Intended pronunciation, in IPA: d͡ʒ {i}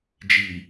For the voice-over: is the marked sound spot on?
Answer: yes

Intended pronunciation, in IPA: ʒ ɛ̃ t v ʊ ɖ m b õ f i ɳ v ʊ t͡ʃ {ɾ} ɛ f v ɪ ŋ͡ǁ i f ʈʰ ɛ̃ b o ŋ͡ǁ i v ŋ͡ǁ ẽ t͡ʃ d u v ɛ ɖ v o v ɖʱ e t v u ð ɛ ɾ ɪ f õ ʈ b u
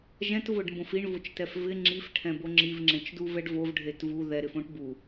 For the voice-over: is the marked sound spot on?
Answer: no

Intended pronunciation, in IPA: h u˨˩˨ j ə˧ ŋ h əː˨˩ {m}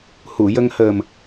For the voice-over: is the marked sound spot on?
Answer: yes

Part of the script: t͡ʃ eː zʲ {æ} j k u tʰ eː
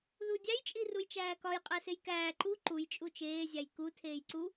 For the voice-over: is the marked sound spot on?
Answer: yes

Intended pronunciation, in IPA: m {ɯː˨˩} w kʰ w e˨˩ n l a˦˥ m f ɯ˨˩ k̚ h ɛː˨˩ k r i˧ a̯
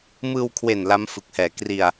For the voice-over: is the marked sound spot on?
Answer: no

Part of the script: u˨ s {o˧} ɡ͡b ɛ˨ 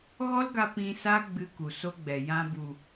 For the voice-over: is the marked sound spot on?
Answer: yes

